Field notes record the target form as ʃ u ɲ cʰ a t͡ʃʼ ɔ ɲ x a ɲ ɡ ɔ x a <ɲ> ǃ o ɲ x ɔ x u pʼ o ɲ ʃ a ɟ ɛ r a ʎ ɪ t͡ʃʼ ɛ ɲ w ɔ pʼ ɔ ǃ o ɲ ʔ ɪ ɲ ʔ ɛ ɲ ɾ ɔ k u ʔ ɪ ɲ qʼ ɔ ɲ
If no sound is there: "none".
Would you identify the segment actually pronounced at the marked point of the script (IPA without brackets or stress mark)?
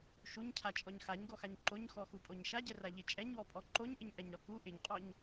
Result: ɲ